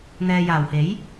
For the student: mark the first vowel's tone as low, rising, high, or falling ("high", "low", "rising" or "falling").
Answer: low